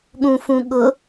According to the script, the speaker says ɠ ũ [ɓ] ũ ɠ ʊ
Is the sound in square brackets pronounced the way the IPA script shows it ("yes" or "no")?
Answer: no